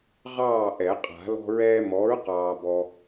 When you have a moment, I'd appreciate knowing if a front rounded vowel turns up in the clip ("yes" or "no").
no